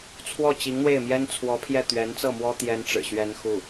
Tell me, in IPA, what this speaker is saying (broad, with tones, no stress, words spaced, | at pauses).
t͡sʰwɔ˥˩t͡ɕi˧˥ŋn̪we˥˩ɪ̯ mjɛ˥nt͡sʰwɔ˧˥pʰjɛ˥˩ t̪ɥɛ˧˥nt͡sɤ˥˩mwɔ˥ t̪jɛ˥nʈ͡ʂɻ̩˨˩ ɕɥɛ˥nxu˥˩